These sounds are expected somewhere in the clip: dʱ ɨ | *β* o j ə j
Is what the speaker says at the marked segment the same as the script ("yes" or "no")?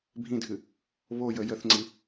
yes